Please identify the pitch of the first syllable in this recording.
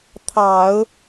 low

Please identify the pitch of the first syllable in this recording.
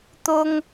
high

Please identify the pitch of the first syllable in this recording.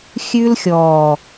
high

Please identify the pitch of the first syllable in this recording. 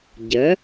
rising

